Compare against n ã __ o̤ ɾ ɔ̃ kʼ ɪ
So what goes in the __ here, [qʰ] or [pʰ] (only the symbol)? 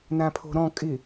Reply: pʰ